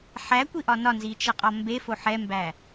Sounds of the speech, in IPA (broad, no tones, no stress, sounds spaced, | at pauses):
ħ æ kʷ i ʔ ɒ n ɒ n z i t͡ʃ ʌ qʼ ɒ m b e f o ħ ɛ m b æ